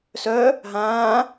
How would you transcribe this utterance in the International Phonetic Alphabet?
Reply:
s œ | ɦ ãː

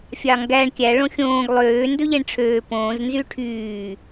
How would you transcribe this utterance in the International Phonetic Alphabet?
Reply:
fʲ ɑ ŋ ɡ æ ɳ kʲ æ ɭ õ xʲ õː ɡ lˠ øː n d ɵ ʎ e ɳ ʈ͡ʂʰ øː p õː z n z y ʈʰ yː

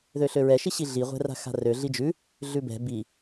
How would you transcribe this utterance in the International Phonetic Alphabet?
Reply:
ð ø ɬ ø ɹ ɛ ʃ i ɕ i ɮ i ʁʷ ɛ̤ r a̤ x a̤ r ø ɮ i d͡ʒ ʉ | ɮ ʉ b ɛ̤ b i

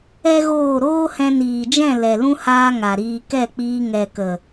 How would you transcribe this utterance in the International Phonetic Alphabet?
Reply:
ɛ˦ ɣ oː˦˨ ɾ oː˦ h ɛ̃˧ n iː˨ d͡ʒ ɛ̃˦˨ l ɛ˨ l ũ˦ h aː˦ ŋ a˨ ɾ iː˧ k ɛ˦˨ k͡p iː˧ ŋ ɛ˨ k ə˨

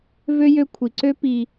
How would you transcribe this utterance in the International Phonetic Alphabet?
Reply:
v ø˥ j ø˦ kʷʰ i˩ ǀ ø˥ p i˨

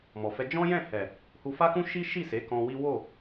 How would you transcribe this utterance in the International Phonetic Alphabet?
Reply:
m ɔ˨ f ɛ˧ d͡ʒ ɔ̃˦ j ɛ̃˦˨ h ɛ˨ | h u˧ f a˦ k ũ˦ ʃ i˦ ʃ i˦˨ s e˨˦ k ɔ̃˧ w i˦ w o˦˨

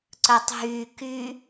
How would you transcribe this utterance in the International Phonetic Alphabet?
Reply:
ǀ œ tˤ ɦ y k y

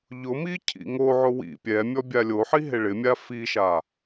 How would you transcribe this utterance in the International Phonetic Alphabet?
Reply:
ʎ ʊ m i cʰ ḭ ŋ o ʕ ʊ w ḭ pʲ ɛ mʲ ɔ bʲ a lʲ o ħ i ɦ e ɭ ɪ mʲ a f i ʃ a

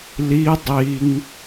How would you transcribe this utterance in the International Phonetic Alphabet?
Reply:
l i dˤ i ŋ

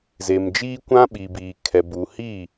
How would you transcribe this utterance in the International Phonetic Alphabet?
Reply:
z e˨ m d͡ʒ iː˦ kʷ ã˦ ɓ i˨ b iː˨ kʰ ɛ˨ b u˨ h i˦˨

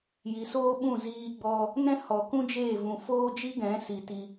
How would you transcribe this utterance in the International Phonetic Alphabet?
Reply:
j i˨ s oː˦ ɓ ũ˦˨ z iː˧ ɡ͡b ɔ˧ | n ɛ̃˦ h ɔ˨ k ũ˦ d͡ʒ eː˦˨ v ũ˨ f oː˦ d͡ʒ i˦ ɡ ɛ̃˨˦ s i˨ t i˧

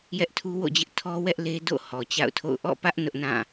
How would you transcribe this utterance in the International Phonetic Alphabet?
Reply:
j ɛ˦ ʔ tʰ u˦ w o̰˦˨ d͡ʑ ɪ˦ ʔ tʰ ɔ˦ w ɛ˦ ʔ l e˦ d o̰˦˨ h ɔ˨ t͡ɕ a̰˦˨ ʊ̯ tʰ o̰˦˨ ʊ̯ ʔ ɔ̰˦˨ p ä˦ ʔ n ʊ˦ ʔ n ã˦˨

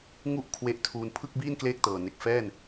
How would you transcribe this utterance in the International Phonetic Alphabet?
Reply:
ŋ u˥˩ ʔ kʰ w e˦˥ ʔ tʰ uː˧ n pʰ ɯ˥˩ k̚ b iː˥˩ n k l eː˥˩ k̚ t ɤː˨˩ n e˨˩ k̚ f ɛː˥˩ n

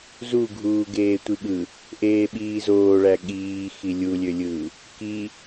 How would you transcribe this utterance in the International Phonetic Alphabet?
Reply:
z u ɡʱ uː ɡ eː tʷ i ɠ ɯ | ʔ eː ɓ iː z oː ɭ æ ɠ iː x i lʲ u lʲ ø lʲ ɯː | k i

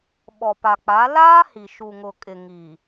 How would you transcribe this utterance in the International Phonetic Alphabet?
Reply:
ɓ ɔ˨ p a˨ k͡p a˨˦ l aː˦ h i˨ ʃ u˨ ŋ ʊ˨ kʼ ɪ˨ ŋ i˨

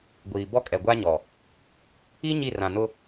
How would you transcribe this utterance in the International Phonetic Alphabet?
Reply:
ɡʷ iː˨ b ɔ˦ kʼ ɛ˨ ɡʷ a˦ ɲ ɔ˨ | i˦ ɲ i˦˨ r ã˨ n ʊ˦

